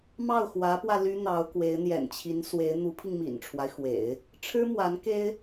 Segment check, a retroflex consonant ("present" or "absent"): present